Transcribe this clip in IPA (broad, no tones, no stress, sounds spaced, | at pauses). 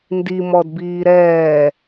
n d i m ɔ d b iː ɾ ɛː